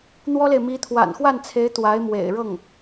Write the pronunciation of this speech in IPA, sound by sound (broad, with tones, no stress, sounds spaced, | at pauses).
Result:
n̪ w ɔ˥ l e˨ ɪ̯ m i˧˥ t̪ʰ w a̰˨˩ n x w a˥˩ n t͡sʰ e˧˥ ɪ̯ t̪ w a˧˥ ɪ̯ m w ḛ˨˩ ɪ̯ ɻ ɤ˥˩ ŋ